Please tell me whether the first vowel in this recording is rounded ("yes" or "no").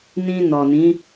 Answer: no